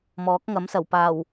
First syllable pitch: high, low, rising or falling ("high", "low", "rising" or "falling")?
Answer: rising